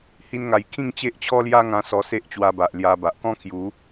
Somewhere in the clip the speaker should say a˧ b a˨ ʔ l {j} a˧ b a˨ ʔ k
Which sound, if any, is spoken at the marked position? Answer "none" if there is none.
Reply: j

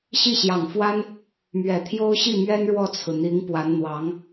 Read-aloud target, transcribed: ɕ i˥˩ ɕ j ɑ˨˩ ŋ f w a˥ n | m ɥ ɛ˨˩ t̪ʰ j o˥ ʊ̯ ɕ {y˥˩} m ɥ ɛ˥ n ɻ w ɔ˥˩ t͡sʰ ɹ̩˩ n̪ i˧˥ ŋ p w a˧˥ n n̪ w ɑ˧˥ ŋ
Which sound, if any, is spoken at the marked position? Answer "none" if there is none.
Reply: i˥˩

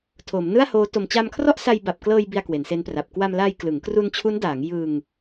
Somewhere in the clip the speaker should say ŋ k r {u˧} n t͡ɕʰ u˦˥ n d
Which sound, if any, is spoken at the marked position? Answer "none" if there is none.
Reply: u˧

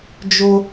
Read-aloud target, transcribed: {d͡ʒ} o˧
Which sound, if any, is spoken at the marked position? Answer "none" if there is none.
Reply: d͡ʒ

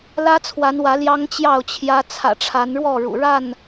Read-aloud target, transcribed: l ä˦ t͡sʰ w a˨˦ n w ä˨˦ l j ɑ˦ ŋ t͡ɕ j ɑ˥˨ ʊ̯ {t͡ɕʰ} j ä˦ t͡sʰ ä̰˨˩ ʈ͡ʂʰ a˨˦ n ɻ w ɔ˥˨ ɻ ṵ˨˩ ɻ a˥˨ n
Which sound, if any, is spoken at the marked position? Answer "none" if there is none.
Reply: t͡ɕʰ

